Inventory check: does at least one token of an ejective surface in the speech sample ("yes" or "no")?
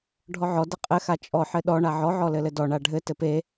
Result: yes